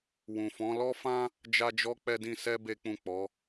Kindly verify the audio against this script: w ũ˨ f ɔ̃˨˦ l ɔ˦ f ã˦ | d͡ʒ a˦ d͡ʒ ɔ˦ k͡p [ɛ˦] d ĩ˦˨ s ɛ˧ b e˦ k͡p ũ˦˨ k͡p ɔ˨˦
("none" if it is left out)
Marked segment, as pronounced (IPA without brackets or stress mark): ɛ˦